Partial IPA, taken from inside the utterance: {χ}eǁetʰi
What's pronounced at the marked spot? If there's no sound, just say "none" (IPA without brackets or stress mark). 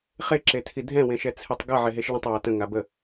χ